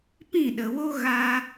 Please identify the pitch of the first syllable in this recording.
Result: falling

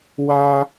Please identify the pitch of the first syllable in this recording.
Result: high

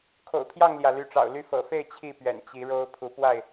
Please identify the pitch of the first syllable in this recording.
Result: low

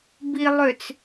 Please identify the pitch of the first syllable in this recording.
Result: low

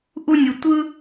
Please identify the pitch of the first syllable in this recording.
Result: high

